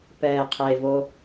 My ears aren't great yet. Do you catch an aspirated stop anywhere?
yes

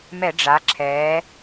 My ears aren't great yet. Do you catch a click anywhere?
yes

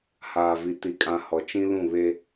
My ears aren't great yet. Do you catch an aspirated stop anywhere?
no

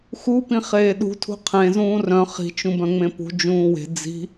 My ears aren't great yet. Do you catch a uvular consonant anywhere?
yes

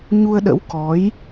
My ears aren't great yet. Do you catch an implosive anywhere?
yes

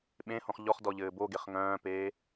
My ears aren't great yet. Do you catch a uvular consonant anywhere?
yes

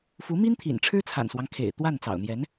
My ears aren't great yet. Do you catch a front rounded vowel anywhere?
no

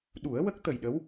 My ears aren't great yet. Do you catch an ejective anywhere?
no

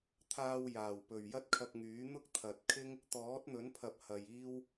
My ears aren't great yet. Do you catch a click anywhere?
no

